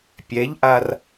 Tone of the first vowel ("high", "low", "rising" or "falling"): rising